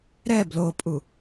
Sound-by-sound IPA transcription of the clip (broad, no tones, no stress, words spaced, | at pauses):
ɾɛ blopʼu